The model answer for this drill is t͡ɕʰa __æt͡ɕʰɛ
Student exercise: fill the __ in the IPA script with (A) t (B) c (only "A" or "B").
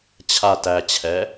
A